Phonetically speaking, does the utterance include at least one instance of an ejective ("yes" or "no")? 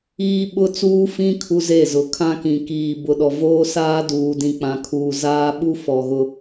no